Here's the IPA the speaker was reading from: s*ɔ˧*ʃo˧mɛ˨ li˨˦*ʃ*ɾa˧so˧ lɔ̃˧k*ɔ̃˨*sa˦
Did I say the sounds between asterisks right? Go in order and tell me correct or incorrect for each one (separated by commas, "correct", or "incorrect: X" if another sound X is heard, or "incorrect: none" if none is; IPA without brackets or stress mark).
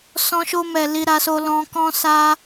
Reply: incorrect: ɔ̃˧, incorrect: none, incorrect: ɔ̃˦